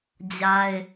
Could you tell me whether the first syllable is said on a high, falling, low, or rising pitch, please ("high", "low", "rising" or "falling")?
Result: high